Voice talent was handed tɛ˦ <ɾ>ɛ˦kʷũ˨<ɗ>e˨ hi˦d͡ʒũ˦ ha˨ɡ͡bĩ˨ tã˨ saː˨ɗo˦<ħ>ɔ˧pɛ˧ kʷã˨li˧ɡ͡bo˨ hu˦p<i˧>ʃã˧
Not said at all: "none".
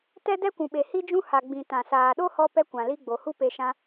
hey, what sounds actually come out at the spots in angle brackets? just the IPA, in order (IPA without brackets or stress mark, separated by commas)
d, ɓ, h, e˧